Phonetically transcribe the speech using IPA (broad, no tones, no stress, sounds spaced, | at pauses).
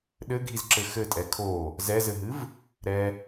ɗ ɘ ɡʱ i z ǁ ɘ x ɘ tʼ ɛ kʰ o | z ɛ z ɘ ɦ ɨ v | ɾ ɛ